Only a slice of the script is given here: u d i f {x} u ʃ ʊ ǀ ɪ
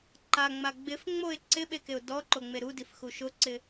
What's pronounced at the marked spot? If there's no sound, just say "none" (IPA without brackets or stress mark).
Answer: x